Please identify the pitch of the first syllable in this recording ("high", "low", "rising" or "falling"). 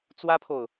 high